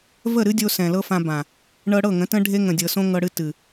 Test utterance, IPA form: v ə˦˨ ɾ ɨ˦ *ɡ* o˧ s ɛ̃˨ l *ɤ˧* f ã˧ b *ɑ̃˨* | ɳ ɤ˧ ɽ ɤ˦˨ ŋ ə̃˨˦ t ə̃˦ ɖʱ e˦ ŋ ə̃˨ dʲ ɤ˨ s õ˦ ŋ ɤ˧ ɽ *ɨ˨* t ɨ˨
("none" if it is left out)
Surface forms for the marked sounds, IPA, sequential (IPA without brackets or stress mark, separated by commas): dʲ, ɤ˦, ã˨, ɨ˧